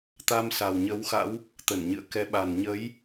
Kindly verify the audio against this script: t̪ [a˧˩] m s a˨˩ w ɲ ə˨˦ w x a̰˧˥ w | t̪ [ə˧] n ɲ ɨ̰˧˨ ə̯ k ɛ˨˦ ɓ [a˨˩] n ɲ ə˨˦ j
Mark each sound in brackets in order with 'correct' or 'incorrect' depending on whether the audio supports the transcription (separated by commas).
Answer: incorrect, incorrect, correct